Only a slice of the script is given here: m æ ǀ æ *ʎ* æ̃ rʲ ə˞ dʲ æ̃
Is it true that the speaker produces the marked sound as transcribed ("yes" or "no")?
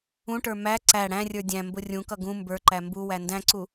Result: no